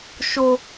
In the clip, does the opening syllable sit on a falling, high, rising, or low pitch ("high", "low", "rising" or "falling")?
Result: high